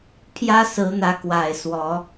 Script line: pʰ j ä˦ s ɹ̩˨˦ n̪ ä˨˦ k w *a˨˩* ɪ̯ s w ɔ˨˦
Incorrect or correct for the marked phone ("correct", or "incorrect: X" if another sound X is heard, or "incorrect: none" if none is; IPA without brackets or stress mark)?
correct